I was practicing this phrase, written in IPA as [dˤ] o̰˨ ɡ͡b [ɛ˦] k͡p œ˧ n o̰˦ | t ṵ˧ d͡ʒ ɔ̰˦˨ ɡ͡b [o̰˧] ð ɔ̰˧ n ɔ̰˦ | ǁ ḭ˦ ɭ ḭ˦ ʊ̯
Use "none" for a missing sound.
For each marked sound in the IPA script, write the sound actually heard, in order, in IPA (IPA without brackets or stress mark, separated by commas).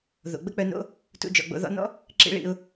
ð, ə˦, o̰˧